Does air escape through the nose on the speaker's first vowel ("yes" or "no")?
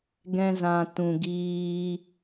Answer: yes